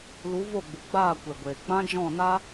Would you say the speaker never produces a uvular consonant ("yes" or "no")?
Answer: yes